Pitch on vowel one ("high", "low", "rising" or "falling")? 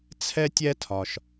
high